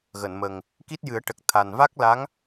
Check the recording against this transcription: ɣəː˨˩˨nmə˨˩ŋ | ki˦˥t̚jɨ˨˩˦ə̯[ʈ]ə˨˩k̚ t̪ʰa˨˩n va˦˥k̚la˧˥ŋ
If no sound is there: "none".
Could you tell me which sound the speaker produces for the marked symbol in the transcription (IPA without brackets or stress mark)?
ʈ